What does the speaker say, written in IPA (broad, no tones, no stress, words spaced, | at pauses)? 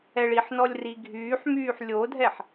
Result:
ɛɭiħnɔlʲ riɡʱyːħmyːħ lʲodʱɛħ